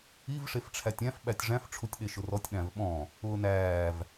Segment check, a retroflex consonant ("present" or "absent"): present